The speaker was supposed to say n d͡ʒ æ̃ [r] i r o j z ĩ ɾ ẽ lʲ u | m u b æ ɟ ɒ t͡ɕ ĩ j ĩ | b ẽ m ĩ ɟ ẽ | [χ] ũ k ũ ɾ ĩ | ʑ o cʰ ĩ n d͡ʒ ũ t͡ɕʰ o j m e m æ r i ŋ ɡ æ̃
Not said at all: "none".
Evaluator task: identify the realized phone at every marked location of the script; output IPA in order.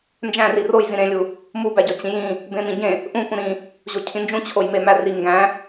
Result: r, ʔ

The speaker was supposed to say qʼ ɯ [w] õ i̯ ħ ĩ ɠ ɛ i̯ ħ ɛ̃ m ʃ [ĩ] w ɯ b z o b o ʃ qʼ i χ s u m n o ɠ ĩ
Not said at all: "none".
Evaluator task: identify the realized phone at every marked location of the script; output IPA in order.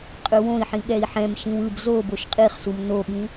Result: w, ĩ

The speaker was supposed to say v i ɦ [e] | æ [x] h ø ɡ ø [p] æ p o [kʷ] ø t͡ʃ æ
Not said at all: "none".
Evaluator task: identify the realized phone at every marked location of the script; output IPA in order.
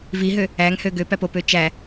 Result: ø, ŋ, p, p

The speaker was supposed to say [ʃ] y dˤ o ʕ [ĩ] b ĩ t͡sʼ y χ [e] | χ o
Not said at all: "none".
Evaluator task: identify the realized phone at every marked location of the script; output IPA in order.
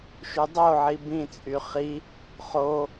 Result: ʃ, i, i

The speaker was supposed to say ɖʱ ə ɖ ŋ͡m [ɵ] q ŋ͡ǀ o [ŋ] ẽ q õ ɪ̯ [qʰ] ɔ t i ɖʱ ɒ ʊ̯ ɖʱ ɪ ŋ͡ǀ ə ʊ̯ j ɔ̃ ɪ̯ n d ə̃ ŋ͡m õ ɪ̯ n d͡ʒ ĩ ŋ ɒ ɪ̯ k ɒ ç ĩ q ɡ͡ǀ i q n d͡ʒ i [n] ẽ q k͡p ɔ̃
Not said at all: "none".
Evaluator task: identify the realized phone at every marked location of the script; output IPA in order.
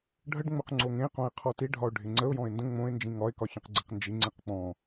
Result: ɵ, ŋ, qʰ, ŋ͡ǀ

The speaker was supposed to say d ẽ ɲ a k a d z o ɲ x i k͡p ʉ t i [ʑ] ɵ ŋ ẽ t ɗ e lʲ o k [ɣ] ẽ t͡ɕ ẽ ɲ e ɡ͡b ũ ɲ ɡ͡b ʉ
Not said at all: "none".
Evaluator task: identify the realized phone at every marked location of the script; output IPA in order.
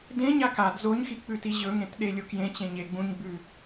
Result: ʑ, j

